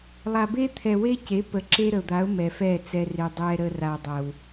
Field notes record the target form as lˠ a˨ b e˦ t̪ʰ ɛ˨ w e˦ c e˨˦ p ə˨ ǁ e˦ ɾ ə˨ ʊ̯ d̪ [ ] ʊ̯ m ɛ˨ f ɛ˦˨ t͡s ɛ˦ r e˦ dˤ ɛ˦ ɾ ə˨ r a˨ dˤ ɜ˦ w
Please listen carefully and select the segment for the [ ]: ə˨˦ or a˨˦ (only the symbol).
a˨˦